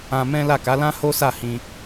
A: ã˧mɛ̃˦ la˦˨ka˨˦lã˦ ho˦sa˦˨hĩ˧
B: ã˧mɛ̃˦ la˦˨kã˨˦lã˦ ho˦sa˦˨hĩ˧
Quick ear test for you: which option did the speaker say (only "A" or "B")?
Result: A